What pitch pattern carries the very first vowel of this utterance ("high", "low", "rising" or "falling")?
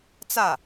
falling